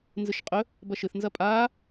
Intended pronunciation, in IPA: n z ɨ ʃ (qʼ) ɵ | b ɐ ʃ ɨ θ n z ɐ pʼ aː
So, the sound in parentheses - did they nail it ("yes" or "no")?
yes